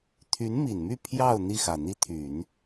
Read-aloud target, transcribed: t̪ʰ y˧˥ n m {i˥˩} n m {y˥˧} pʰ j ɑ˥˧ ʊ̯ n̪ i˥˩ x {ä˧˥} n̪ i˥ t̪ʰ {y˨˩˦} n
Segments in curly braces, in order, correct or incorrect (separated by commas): incorrect, correct, incorrect, correct